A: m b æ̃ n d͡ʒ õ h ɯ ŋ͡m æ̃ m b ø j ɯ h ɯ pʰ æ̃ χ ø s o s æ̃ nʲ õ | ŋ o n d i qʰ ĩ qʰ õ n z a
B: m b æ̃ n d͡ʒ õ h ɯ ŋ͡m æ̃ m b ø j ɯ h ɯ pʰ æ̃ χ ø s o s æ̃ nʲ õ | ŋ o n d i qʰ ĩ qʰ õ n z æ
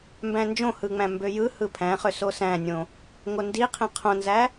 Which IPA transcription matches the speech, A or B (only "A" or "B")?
B